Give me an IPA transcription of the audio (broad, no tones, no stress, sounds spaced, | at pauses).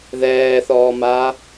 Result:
ð ɛː θ ɔː m aː